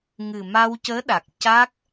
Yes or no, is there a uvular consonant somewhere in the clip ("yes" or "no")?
no